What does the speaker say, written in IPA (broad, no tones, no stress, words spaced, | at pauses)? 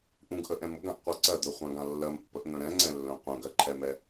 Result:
ʔũɡʔəʔɛ̃m ʊɡãʔqʷa ǀɜd̪œχʷãɡã lːɜmpːəʔn̪œ̃ ɾɛ̃ŋ͡ǀɛ̃lːœ̃ qʷœ̃ɡɜǃʰɛmɛ